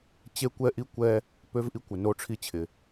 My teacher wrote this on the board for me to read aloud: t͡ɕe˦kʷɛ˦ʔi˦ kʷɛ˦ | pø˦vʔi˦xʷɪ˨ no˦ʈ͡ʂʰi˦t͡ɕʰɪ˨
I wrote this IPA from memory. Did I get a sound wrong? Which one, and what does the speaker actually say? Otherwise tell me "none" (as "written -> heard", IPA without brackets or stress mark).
xʷ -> kʷ